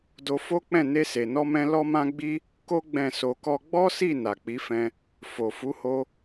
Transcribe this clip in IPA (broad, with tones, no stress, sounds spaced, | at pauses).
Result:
d o˧ f o˦ k͡p ɛ̃˦˨ n e˧ s e˨ n ɔ˧ m ɛ̃˧ l ɔ˦ m ã˦ ɡ͡b i˦ | k o˦ ɡ͡b ɛ̃˦˨ s o˧ k ɔ˦ ɡ͡b ɔ˦ s i˦˨ n a˨ k͡p i˨˦ f ɛ̃˧ | f o˨ f u˨˦ h o˧